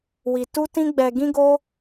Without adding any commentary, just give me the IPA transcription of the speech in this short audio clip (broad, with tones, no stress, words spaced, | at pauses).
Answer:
wi˧ tu˦tĩ˦ɡ͡bɛ˧ ɡĩ˦ɡo˦